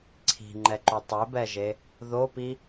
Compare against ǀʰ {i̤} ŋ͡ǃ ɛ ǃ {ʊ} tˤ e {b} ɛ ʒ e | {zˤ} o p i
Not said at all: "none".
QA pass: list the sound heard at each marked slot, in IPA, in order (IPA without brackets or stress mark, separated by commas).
i̤, u, b, ð